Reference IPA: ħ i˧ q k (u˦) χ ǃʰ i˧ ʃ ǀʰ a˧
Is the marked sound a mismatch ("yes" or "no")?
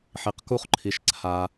no